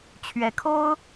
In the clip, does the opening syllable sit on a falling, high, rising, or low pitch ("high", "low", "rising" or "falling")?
rising